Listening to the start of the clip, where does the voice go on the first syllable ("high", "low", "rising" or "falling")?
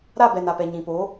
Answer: falling